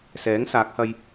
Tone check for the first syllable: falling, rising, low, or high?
rising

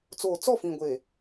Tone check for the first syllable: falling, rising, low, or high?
low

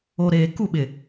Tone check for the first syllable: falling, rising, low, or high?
low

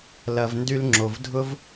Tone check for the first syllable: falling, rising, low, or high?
low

